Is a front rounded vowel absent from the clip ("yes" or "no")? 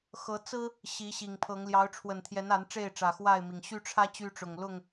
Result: no